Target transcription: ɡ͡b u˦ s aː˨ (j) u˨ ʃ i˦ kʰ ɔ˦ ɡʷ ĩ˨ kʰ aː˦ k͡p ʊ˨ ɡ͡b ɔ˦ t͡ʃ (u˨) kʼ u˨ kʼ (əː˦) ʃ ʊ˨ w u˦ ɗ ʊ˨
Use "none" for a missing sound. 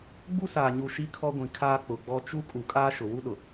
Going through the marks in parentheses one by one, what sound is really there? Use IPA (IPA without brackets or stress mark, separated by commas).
ɲ, u˦, aː˦